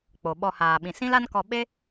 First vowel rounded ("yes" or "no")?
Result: yes